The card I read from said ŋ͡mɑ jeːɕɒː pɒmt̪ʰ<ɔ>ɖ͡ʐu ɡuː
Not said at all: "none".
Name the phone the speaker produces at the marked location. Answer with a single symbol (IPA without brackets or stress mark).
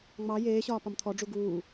ɔ